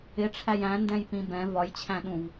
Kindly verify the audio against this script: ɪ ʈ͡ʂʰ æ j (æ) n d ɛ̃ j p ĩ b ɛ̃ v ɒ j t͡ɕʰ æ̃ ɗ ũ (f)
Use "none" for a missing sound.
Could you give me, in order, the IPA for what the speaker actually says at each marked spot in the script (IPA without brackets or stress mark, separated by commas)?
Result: æ̃, v